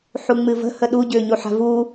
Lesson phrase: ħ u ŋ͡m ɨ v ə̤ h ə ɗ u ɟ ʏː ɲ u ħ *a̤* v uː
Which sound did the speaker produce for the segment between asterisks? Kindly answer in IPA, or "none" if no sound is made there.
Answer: a̤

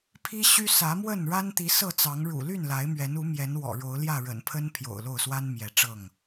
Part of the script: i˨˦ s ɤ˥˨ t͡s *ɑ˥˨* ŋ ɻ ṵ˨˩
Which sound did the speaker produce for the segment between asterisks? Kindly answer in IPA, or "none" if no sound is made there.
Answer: ɑ˨˦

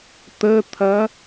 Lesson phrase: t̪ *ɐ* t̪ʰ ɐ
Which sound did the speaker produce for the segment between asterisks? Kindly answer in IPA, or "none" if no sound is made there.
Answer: ə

